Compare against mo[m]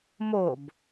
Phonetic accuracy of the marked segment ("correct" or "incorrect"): incorrect